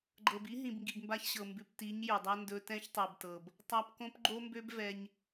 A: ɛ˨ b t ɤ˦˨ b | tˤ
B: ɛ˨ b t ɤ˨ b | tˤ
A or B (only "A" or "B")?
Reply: B